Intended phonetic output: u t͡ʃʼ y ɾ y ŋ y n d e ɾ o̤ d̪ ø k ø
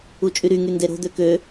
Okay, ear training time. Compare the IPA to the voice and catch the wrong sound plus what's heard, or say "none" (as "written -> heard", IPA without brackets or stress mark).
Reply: none